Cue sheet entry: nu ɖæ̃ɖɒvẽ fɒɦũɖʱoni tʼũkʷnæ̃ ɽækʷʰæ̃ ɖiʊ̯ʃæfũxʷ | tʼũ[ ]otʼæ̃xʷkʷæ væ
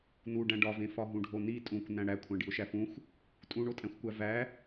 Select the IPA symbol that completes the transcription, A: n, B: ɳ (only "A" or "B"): B